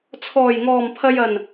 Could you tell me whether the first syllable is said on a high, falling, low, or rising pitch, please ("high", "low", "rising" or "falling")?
low